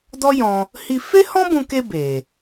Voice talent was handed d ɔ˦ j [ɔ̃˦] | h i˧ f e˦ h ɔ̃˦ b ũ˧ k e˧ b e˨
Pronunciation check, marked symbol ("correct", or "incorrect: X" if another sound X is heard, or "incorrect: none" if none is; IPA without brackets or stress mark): incorrect: ɔ̃˧